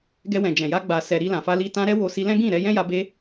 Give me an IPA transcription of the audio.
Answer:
ɡɛ˧wɛ̃˨ d͡ʒɛ̃˨ja˧ ɡ͡ba˨sɛ˨ ɾi˧lã˨fa˧li˧ tã˧ ɾɛ˦wo˧si˧ lɛ̃˦ɡĩ˦˨ ɾɛ˧jɛ̃˦ja˧ be˧

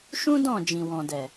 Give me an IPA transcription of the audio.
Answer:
ʃũ˦dɔ̃˦˨ d͡ʒĩ˨wɔ̃˨dɛ˨

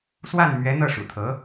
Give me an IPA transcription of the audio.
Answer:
swa˥˩n mɥɛ˧˥n̪ɤ˥˩ ʂṵ˨˩t̪ʰɤ˧˥

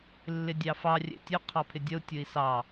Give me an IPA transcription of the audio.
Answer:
lːɪdʲɑfɑ rʲɛ̰tʲʊ qʰɑpʰɪdʲʌu̯ tʲʊi̯sɑ

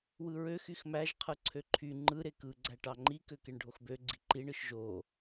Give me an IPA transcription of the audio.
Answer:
wɯɹøx yxmæʒ qʰɯǀʰøǃʰy ŋ͡ǃɯ ɾekɯ ɡ͡ǀæʈɑŋ͡ǃi køkeɳɖʱoxbø ɡ͡ǀiǃiɳ ɯʃʒo

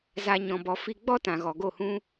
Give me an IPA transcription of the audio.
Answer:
za˧ ɲɔ̃˧bɔ˧ fi˧ ɡ͡bɔ˦tã˨ ɣɔ˨ɡo˦˨hũ˦

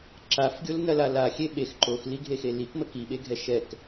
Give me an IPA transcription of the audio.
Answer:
ǁafɡʲolnɐla laxʲe ɓex ǃoxliɡʱexe likmə kiɓeɡʱɛ ʃɛk

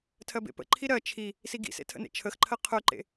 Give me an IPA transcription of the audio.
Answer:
tʰɜbḛpə̰ǃʰi ɾɜ t͡ʃʰi | siɡḭsḛ tʰə̰nḛt͡ʃʰəxǃʰɜ qʰœǃḛ

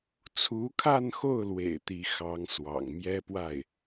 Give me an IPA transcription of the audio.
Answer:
t͡sʰu˧˥kʰa˥˧nxo˥˩ʊ̯lwḛ˨˩ɪ̯ t̪i˧˥xɑ˧˥ŋswɑ̰˨˩ŋ mjɛ˥pwa˥˩ɪ̯

